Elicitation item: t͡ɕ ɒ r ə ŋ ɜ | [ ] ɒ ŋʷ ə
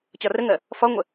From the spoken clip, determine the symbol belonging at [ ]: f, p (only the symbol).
f